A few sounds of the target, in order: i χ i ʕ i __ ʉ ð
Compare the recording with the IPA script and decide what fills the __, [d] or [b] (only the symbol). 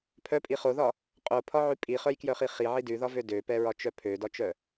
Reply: d